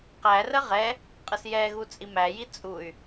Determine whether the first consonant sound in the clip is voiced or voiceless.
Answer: voiceless